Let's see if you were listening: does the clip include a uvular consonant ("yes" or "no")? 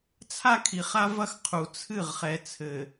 yes